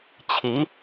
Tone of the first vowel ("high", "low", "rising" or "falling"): rising